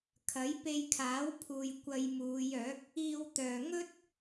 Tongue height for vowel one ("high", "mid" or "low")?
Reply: low